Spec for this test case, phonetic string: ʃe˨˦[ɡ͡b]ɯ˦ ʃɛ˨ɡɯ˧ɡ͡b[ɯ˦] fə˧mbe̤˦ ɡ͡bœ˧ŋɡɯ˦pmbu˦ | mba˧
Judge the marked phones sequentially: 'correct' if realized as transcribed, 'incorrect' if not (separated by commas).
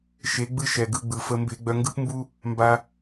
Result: correct, incorrect